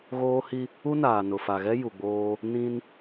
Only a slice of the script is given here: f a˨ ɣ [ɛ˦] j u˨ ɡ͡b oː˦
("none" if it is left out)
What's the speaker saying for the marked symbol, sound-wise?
ɛ˦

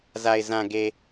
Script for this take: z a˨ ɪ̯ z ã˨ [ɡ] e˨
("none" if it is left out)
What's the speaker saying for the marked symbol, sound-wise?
ɡ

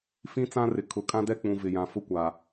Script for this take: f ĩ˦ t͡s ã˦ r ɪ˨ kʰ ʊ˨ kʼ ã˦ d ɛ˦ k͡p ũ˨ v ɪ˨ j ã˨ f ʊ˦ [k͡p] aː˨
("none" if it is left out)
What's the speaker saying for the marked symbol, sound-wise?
kʷ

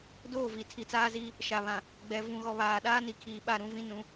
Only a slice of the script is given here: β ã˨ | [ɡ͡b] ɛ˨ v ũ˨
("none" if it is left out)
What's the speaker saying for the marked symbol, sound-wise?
ɡ͡b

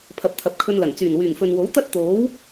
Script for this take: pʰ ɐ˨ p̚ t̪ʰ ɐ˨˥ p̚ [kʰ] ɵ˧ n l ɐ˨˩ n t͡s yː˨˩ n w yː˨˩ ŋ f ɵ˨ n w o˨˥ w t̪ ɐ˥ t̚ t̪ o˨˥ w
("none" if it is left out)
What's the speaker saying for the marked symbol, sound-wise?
kʰ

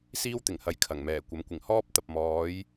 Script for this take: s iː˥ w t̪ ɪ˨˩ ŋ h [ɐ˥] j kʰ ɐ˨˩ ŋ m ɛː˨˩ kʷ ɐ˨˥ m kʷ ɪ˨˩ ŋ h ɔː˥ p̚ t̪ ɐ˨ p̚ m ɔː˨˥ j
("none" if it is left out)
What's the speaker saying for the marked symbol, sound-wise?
ɐ˨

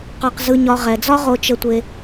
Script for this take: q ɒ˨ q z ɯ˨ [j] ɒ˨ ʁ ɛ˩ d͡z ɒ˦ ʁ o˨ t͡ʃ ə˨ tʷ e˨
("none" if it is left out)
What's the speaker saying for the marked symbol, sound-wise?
ɲ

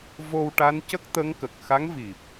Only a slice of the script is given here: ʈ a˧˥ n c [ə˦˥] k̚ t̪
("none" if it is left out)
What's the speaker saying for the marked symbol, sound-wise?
ə˦˥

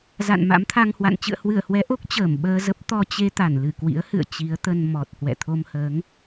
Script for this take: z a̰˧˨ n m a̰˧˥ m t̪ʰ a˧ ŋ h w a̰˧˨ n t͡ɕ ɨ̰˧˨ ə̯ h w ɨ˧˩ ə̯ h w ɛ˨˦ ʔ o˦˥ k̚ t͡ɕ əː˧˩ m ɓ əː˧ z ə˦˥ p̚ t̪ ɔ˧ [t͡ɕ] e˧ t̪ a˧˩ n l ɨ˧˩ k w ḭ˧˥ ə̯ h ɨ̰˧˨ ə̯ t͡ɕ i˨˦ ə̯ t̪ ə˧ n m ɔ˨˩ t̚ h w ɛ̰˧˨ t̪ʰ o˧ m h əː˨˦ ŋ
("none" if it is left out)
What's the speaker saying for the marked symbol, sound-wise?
t͡ɕ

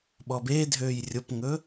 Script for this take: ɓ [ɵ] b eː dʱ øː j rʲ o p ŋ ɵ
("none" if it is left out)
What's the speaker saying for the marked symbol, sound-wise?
ɔ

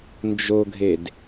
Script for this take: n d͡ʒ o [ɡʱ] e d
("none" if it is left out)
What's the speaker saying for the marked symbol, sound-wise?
ɡʱ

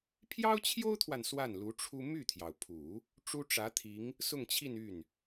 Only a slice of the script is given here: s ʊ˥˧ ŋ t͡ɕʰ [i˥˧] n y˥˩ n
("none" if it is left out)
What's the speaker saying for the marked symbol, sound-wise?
i˥˧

